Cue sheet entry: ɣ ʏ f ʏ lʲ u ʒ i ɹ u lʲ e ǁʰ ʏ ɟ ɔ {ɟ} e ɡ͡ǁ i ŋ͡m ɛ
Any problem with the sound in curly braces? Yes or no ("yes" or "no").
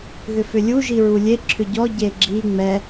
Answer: no